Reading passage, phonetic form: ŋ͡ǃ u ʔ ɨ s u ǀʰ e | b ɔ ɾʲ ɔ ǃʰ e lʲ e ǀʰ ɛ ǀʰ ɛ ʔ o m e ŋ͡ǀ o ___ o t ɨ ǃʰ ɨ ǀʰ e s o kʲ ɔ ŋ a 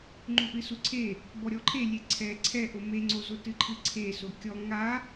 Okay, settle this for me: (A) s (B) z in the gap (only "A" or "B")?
B